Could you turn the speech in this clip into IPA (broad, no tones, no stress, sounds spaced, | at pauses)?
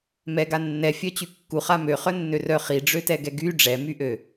m ɛ ɡ a nː ɛ fʲ œ t͡ɕ y kː u χ a m ø χ œ nː ø r œ χ i ɖ͡ʐ ø t ɛ ɡ ɛ ɡ y ɖ͡ʐ ɛ m y ʔ ø